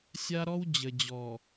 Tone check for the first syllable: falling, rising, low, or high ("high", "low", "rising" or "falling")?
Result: high